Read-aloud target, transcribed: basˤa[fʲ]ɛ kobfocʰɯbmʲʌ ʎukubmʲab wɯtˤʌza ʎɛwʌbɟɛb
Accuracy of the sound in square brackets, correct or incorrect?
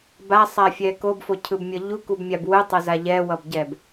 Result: correct